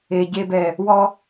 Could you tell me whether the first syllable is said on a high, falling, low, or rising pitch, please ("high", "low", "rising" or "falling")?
low